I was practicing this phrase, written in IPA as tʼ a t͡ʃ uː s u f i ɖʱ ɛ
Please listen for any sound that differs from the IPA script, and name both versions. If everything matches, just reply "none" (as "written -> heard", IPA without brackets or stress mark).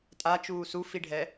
none